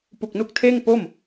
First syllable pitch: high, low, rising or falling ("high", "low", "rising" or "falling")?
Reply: low